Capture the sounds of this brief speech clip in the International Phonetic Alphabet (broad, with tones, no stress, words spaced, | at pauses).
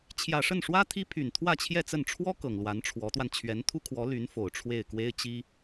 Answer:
t͡ɕʰjä˨˩ʂə˥˩nʂwä˥ t̪ʰi˥pʰy˨˩n t̪ʰwä˥˧t͡ɕʰjɛ˥˧t͡sə˥˩n ʈ͡ʂʰwɔ˥ kɤ˨˩ŋlwa˧˥nʈ͡ʂʰwɔ˧˥t̪wa˧n t͡ɕʰɥɛ˧˥nt̪ʰu˥kʰwɔ˧˥ly˧˥n fo˨˩ʊ̯ʈ͡ʂʰwe˥˩ɪ̯ kwe˥ɪ̯t͡ɕi˥